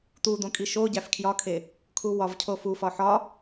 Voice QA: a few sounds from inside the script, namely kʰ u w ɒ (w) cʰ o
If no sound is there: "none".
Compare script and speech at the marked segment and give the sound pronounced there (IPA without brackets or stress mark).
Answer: v